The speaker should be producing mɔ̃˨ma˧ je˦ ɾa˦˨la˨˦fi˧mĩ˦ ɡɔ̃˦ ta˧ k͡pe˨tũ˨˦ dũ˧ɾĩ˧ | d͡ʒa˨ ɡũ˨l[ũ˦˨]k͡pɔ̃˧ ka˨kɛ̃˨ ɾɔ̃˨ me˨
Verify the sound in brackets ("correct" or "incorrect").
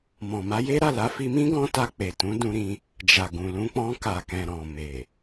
incorrect